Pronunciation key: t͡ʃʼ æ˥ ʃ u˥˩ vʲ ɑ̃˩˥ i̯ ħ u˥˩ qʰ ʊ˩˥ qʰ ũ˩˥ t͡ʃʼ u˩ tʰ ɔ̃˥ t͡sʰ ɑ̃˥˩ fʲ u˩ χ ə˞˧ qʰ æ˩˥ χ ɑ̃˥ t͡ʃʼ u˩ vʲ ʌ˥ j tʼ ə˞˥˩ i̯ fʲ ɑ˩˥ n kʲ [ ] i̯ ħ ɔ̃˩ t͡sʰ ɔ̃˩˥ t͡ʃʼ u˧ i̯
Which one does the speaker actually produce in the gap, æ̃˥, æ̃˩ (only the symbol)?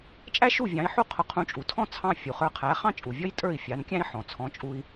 æ̃˥